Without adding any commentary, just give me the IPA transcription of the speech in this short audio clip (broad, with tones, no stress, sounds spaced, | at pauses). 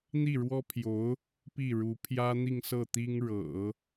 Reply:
n̪ i˥˩ ɻ w ɔ˥ pʰ j o˧˥ ʊ̯ | p i˥˩ ɻ u˧˥ pʰ j ä˥ n̪ i˥˧ ŋ s ɤ˥˩ t̪ i˥ ŋ ɻ ɤ̰˨˩˦